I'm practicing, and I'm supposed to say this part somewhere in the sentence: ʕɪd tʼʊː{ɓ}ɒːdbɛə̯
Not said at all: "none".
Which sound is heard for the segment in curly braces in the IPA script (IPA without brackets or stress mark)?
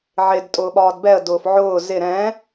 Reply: ɓ